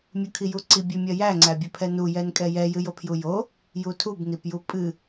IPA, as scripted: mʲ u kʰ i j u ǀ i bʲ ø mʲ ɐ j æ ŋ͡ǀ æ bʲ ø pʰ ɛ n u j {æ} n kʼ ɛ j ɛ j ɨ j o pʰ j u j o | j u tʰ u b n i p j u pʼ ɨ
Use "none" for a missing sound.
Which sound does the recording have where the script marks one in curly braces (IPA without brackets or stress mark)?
ɛ